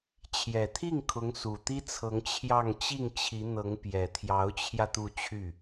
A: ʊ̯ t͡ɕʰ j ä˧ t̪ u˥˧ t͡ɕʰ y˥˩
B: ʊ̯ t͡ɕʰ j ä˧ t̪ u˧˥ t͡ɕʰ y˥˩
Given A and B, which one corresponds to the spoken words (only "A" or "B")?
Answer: A